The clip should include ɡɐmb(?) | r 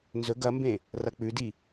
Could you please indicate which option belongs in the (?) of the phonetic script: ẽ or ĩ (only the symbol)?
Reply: ẽ